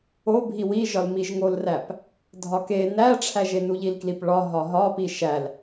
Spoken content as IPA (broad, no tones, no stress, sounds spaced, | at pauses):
o bʱ i w i ʒ ɒ l m i ʒ ŋ o l r æ p | dʱ ɒ k e n æ ʈ͡ʂʰ æ ʒ e n u ʎ i l k l i p ɭ ɒ ɦ ɒ ɦ ɒ p i ʃ æ l